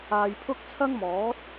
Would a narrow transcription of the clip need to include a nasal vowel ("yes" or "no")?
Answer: no